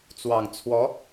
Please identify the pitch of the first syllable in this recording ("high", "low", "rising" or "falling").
low